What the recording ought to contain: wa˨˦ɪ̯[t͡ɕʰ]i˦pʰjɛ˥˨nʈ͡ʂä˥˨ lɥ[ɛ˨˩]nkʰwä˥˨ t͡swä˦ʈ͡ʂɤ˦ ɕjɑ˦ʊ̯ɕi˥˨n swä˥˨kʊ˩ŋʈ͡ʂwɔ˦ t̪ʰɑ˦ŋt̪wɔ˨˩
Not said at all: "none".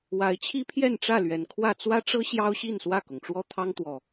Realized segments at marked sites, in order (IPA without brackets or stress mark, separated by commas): t͡ɕʰ, ɛ˨˩